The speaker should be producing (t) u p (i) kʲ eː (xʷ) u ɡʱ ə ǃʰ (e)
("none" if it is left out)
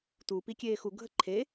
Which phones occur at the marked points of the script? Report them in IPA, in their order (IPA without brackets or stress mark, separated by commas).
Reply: t, i, x, e